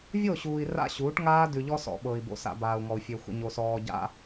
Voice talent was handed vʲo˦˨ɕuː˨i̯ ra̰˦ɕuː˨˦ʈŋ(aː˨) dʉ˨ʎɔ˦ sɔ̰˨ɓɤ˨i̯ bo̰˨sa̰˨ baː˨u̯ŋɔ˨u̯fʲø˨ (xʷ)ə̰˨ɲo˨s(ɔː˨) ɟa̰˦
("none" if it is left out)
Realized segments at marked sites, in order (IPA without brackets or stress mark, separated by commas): aː˦, xʷ, ɔː˨